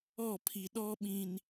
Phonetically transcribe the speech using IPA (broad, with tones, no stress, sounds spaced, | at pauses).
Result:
ɔ˦˨ pʰ i˨ ɗ ɔ˦ ɓ ĩ˨ n